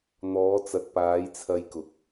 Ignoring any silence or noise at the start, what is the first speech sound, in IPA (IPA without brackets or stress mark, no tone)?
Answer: n̪